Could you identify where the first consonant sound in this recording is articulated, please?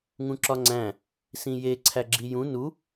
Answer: velar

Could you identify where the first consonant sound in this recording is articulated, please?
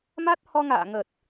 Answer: labial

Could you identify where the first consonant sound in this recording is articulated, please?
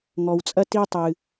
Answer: velar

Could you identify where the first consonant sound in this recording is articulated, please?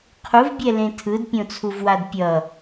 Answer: uvular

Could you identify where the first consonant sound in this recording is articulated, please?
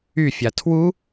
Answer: labial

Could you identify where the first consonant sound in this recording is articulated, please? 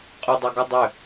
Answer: uvular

